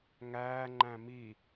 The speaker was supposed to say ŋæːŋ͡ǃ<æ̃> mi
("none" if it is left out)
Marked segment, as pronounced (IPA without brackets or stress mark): æ̃